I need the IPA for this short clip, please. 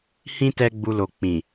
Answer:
h ĩ˦ t ɛ˦ ɡ͡b u˧ l o˨ k͡p ĩ˨

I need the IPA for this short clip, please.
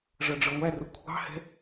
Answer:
ʐ ʌ ɖ͡ʐ ə˞ ŋʷ æ r ʊ kʷʰ ɑ̤ h ɛ̤

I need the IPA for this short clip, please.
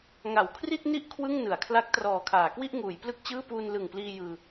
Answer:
ŋ a˨˩ w kʰ r i˥˩ t̚ n i˥˩ ʔ kʰ w ɯ˥˩ ŋ n ɯ˩˦ a̯ kʰ l a˦˥ k̚ t r ɔː˨˩ kʰ aː˩˦ k w i˥˩ ʔ ŋ uː˩˦ j p l ɯ˥˩ k̚ t͡ɕ ɯː˥˩ p uː˧ n l ɯ˨˩ ŋ p l iː˧ j ɯː˧

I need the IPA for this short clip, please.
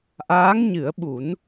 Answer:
ʔ aː˧˥ ŋ ɲ ɨ˨˩˦ ə̯ ɓ u˨˩˦ n

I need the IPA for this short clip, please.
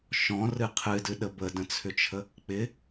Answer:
ʃ ɔ̃ r ɨ qʰ ɨ d ɨ ɗ ə b ə d ə̃ t͡sʰ ʏ t͡ʃʰ ə | k͡p ɪ

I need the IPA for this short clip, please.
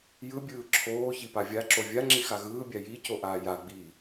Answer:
j ɯ bʲ ɯː ǁʰ oː ç i p a vʲ a ǁ o vʲ a ŋ͡ǁ i x a ɣ ɯː bʲ a j i c o ʔ aː j a ɡ͡b iː

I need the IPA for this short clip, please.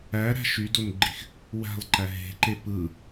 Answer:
æ ɾ æ̤ ʃ y d o n ɡ͡ǃ i x | w æ̤ lˠ ǃ æ ɦ e̤ ǃ e p ɯ

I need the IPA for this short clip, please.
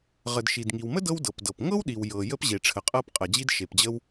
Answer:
ʁ ə˩ d ʃ i˩ d ŋ i˩ w m ə˥ d ɤ˥ w d ɤ˩ p d ɤ˩ p ŋ ɤ˥ w ɗ i˩ w j ɤ˩ j ə˥ p ʑ e˩ ʈ͡ʂʰ ə˩ qʼ ɤ˥ p qʼ ɐ˩ d͡ʑ i˥ d ʃ e˩ p d͡ʑ ə˥ w

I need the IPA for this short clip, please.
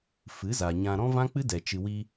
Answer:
f ɨ˨˦ z a˨ ɲ ã˧ ɾ ɔ̃˦ v ã˦ k͡p ɨ˦ d ɛ˨ t͡ʃ ɨ˨ w i˧

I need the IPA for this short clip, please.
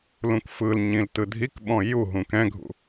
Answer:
l ũ k f ɯ l ɲ ĩ l t ɯ dʱ i k ɓ ɔ̃ j u ɦ ũ k ɛ̃ ɡʱ ṵ

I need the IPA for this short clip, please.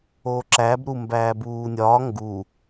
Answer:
o ǁ æ b ɾ u m b æː b uː nʲ ɒː ŋ ɡ u

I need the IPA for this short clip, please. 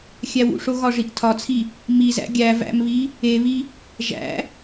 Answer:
xʲ æ w ṵ ʂ o ɣ ɒ ʐ i ʔ tʰ ɒ t͡sʰ i | m i z æ̰ ɡʲ æ v æ̰ m β i | e β i | ʒ æ̰

